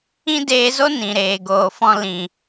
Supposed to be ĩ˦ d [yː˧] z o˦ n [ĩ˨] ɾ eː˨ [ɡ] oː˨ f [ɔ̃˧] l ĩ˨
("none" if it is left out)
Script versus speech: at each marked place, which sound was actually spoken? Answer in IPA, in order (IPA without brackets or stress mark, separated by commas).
eː˧, ĩ˨, ɡ, ɔ̃˧